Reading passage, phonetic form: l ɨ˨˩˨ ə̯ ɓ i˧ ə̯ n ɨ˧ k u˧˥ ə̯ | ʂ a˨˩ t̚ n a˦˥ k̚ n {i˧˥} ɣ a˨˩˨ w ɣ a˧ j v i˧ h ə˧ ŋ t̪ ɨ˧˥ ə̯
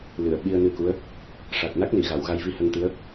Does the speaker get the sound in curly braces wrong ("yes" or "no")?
yes